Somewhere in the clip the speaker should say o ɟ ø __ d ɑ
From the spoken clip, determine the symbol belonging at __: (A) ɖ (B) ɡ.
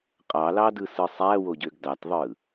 B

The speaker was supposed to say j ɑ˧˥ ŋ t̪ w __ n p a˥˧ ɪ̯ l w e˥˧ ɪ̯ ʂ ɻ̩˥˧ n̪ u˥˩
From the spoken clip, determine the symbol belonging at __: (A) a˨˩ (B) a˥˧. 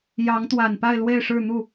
A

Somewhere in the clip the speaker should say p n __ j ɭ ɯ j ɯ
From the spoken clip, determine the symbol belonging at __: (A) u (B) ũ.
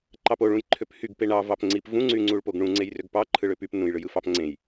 B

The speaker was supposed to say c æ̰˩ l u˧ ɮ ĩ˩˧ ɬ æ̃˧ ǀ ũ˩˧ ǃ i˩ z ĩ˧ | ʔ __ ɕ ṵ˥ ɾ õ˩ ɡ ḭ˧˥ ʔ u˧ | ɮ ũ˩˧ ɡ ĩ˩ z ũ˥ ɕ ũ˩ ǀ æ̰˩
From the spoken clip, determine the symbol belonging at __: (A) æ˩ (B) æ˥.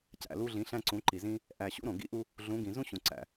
A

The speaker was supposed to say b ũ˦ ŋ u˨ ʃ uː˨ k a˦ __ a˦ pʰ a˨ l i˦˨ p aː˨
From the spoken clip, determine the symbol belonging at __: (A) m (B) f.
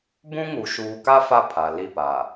B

